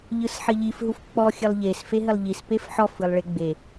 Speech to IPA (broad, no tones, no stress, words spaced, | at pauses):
ʎɯsħɘʎif ɦufk͡pɔ xʲɘlˠʎes feɦɘlˠʎis pefħɔf ɯlˠɭeɡ͡be